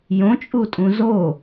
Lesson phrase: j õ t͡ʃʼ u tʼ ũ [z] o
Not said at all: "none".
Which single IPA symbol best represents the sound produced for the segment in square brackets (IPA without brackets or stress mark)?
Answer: z